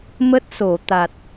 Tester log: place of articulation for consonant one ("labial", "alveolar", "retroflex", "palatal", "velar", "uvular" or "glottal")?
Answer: labial